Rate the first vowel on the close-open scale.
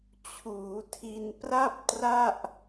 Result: close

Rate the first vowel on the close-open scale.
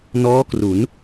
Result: mid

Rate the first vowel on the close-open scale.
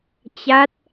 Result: open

